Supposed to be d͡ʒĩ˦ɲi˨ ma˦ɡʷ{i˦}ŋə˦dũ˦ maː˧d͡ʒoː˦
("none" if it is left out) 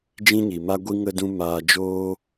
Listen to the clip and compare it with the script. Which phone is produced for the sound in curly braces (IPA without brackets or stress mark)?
i˦